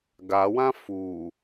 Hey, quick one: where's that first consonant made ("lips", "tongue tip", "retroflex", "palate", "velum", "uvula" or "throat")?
velum